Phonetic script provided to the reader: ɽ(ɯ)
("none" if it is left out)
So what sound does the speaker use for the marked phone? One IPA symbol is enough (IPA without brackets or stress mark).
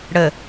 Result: ə